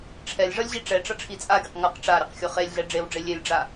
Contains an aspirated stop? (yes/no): yes